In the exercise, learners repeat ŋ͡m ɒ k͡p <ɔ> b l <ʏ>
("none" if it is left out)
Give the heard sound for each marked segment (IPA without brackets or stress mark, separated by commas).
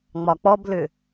ɔ, ʏ